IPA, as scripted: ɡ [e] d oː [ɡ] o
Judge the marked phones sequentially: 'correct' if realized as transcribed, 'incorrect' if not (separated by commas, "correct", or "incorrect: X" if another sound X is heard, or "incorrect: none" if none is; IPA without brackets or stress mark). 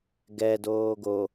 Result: incorrect: ɛ, correct